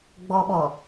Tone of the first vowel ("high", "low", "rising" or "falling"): high